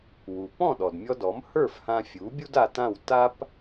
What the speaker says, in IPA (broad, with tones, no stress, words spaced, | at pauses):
wu˩ pɔ̃˥˩ɗɔ˩dmʲɔ˧dɔ˩˥m hə˞˥˩f hã˧fʲu˩˥bʲu˥d a˧ tã˥˩w ta˥p